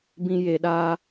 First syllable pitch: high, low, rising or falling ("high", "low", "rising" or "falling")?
low